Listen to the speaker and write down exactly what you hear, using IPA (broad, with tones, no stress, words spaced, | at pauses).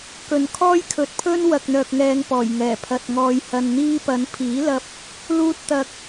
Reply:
kɵ˨˩nkʰɔː˥j kʰɵ˨t̚pʰɵ˥n wɐ˨k̚n̪œː˨k̚ ŋɛː˧ŋpɔː˨˩j ŋɛː˨˩pʰɐ˨t̚ŋɔː˧j hɐ˧nn̪iː˥ pɐ˨˧npʰiː˨˥lɐ˧p̚ | luː˧t̚t̪ɐ˨k̚